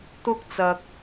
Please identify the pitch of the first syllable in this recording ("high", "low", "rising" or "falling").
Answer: high